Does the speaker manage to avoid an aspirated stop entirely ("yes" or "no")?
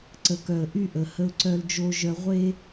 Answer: yes